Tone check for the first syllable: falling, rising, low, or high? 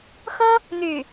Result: high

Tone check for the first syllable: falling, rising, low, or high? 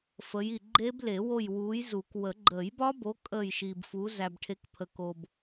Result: rising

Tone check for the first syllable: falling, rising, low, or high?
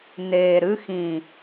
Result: low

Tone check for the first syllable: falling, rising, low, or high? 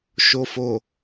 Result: low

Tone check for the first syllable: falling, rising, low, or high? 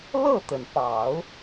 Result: falling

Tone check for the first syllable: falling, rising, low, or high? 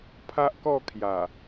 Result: high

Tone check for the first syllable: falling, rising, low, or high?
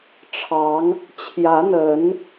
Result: rising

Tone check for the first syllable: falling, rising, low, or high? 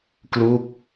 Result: falling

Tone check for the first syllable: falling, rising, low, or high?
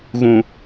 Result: low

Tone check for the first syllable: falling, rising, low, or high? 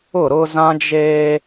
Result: falling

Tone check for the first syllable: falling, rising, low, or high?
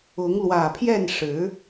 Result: rising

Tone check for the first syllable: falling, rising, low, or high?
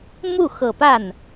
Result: falling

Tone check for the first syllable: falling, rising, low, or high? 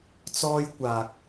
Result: high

